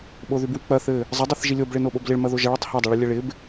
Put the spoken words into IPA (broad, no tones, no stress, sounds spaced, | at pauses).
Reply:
ɓ o ð y b w i k͡p ɐ θ ɘ | zˤ ɘ dˤ i θ ʒ i lʲ o b ɭ ɪ n o ɓ o b l ɪ ɭ m ɐ ð o ʒ ɐ ɭ ɘ tˤ h e dˤ ɘ ɭ i lʲ ə ɭ ɪ b